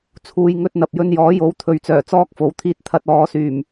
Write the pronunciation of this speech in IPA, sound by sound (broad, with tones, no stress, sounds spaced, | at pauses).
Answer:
t͡sʰ uː˨ j ŋ ɵ˧ t̚ n̪ ɐ˨ p̚ j ɵ˧ n j ɔː˨˥ j o˨˥ w t̪ʰ ɵ˨ ɥ t͡s œː˨˩ t͡s ɔː˥ k̚ f o˨ w t̪ʰ iː˥ t̚ t̪ʰ ɐ˧ t̚ ɔː˨˧ s yː˨˩ m